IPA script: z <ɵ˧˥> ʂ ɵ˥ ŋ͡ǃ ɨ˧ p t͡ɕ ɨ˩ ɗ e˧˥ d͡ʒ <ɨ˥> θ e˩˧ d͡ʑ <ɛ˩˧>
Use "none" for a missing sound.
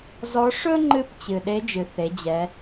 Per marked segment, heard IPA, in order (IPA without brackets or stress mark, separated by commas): ɔ˧˥, ɨ˩, ɛ˩˧